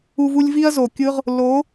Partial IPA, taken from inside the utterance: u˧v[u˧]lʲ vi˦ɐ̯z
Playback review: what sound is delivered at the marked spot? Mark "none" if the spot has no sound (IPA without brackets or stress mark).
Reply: u˧